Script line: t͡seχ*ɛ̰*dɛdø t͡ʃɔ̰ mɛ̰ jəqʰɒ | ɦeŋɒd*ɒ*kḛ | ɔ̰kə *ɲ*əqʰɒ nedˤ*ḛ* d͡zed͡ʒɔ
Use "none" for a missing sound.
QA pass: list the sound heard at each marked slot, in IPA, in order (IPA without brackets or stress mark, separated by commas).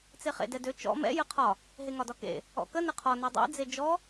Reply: ḛ, ɒ, n, ḛ